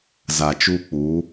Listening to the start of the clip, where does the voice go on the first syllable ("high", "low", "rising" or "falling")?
low